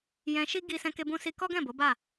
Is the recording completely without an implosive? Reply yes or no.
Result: yes